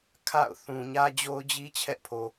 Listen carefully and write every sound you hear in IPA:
kʰ a̰˦˨ ʊ̯ θ ũ˨ ɲ ä˦ d͡ʑ o˦ ʊ̯ d͡ʑ i˦ t͡ɕʰ ɛ˦ ʔ pʰ o˨

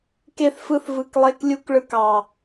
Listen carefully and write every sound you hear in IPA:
k e˧ θ f ɯ˧ θ v ɯ˨ k lˠ e˧ k lʲ u˧ k ɭ ɯ˧ k ɑ˨

